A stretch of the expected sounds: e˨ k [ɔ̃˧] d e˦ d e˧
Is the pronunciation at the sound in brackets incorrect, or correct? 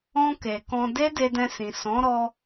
correct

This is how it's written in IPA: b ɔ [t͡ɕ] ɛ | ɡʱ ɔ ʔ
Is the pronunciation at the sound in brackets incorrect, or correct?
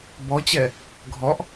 correct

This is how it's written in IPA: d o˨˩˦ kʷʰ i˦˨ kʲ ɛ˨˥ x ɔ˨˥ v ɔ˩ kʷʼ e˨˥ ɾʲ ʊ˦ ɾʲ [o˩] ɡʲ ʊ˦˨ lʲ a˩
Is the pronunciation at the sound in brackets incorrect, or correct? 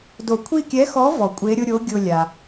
incorrect: o˨˥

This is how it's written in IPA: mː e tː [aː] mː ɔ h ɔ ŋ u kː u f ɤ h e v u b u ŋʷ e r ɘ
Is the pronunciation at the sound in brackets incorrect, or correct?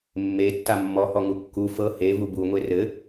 incorrect: a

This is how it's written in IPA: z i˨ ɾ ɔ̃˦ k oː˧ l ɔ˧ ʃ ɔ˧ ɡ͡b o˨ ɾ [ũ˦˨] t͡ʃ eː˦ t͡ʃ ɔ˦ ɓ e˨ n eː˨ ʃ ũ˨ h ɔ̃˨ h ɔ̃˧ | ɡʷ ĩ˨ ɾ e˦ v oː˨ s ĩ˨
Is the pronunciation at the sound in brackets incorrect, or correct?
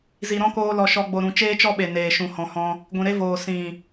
incorrect: ũ˨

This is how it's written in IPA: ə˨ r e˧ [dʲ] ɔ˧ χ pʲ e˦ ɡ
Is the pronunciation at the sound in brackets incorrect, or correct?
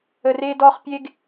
incorrect: d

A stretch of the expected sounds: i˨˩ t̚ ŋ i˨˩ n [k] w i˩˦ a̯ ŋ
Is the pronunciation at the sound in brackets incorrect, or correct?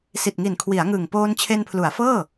incorrect: kʰ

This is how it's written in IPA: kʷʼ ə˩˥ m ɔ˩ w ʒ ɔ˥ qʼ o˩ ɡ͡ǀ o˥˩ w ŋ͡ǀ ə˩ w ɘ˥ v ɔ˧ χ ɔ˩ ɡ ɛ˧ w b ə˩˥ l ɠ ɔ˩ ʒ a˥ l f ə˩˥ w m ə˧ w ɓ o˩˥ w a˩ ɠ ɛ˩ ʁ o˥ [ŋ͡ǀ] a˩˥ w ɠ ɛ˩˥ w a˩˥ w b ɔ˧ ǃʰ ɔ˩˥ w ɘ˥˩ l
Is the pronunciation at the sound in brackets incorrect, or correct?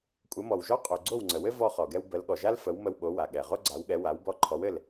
incorrect: ɡ͡ǀ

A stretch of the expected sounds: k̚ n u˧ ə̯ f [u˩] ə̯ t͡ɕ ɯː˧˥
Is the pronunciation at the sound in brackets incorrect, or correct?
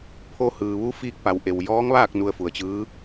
correct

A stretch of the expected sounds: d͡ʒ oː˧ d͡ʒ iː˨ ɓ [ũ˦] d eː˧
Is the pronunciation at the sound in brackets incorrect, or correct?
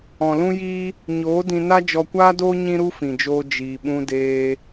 incorrect: ũ˧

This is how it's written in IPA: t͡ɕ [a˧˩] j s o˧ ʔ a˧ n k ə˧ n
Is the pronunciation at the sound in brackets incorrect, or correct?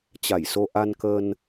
correct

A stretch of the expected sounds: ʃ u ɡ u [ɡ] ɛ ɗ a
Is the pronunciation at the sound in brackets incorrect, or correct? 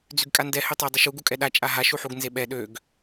incorrect: kʼ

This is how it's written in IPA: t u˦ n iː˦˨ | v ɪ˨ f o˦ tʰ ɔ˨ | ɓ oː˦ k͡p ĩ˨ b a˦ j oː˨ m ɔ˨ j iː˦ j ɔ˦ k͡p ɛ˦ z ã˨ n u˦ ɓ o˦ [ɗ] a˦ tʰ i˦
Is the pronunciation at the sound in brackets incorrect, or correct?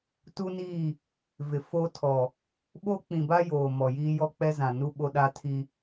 correct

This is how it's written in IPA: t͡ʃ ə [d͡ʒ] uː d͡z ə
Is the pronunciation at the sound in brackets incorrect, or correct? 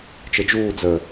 correct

